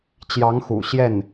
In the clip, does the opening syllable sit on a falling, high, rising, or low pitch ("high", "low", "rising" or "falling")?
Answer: rising